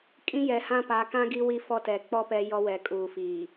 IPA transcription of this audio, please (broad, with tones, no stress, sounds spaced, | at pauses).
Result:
kʼ ĩ˦ j ɛ˨ h ã˦ p a˨˦ k ã˦ ɡ i˦ w i˦ f ɔ˦ t ɛ˨ k͡p ɔ˦ p ɛ˦ j ɔ˦ w ɛ˨ kʼ uː˨ f iː˨